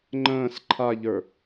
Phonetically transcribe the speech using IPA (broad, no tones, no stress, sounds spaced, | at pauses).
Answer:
ŋ͡ǃ ə̃ː s ǃʰ a ʎ ə˞